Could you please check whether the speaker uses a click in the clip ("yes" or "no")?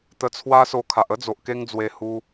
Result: no